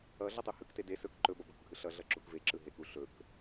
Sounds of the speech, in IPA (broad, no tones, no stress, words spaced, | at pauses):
ʌ ɮʌtˤuhɯkte de sɵk ǃɵbʌ bɵkɡʱɯɬʌɮʌ ǁukveǁɯ ɦeku ɬɵk